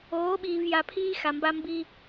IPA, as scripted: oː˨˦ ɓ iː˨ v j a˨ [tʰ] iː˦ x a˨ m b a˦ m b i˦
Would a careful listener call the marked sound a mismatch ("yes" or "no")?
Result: yes